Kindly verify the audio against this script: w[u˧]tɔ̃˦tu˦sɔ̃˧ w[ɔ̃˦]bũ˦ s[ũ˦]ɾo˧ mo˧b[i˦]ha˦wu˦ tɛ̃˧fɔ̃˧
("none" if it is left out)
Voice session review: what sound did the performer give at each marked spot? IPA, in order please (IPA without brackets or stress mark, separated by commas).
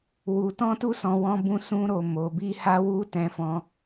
u˧, ɔ̃˦, ũ˦, i˦